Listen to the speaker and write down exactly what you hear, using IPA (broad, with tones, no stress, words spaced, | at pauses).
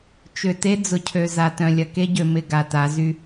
t͡ʃʏ˨te˦ d͡zʊ˨cʰø˨ za˨tœ̃˨lʲɐ˨ ke˦ɟø˨ mɪ˦˨ ɡa˨ta˨˦zy˦